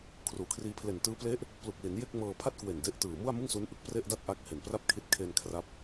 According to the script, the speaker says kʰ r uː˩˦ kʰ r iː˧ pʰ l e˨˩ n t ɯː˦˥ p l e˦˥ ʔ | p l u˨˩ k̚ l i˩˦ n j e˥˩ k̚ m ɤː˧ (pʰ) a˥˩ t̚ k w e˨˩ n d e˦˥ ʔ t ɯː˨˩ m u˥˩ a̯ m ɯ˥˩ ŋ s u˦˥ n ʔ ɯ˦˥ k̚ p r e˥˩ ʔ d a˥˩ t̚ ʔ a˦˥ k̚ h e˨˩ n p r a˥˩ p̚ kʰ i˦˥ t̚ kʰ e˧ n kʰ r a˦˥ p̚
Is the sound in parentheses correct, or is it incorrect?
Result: correct